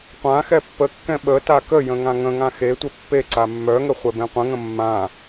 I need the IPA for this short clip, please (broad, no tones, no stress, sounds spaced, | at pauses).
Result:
qʷ ã x ɛ pː ə kː ɛ̃ ɓ ə t a k ə j ə̃ ŋ ã ŋ ə̃ ŋ ã x e tʷ e pː e ǀ a mː œ ŋ ə χʷ ɛ b ẽ qʷ ə̃ ŋ ə̃ mː ã